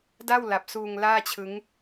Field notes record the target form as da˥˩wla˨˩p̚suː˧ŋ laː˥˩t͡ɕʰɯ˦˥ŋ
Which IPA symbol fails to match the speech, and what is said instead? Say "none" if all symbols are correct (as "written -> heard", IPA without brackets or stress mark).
none